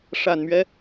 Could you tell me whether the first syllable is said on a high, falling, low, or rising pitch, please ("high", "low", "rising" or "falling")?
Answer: low